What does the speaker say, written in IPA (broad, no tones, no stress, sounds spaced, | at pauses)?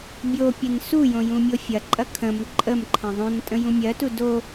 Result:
bʲ o pʲ ɛ n s u j õ j ũ mʲ o fʲ ɐ ǃʼ ɐ kʰ ə̃ m ǃʼ ə m ǃʰ ə̃ ðˤ õ n tʼ ə̃ j ũ mʲ ɜ t u d o